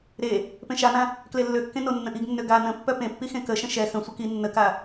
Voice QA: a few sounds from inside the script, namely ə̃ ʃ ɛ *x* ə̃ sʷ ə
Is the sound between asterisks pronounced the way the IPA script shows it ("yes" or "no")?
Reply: yes